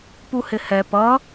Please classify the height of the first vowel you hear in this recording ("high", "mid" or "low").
high